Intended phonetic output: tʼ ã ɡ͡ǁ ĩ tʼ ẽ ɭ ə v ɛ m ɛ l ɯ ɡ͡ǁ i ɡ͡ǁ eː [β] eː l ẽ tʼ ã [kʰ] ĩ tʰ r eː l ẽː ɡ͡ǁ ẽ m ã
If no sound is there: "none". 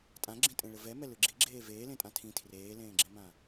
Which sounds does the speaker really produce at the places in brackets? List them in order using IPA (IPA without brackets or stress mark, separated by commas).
v, tʰ